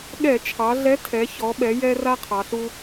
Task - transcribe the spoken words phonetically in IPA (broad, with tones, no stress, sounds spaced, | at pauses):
ɠ ɛ˧˩˧ t͡ʃʰ ɑ˩˧ ɮ ɛ˨˥ tʰ ɛ˩˧ ç ɔ˩˧ ɓ ɛ˩˧ j ɛ˦ r a˦ qʰ ɑ˩˧ ɬ u˦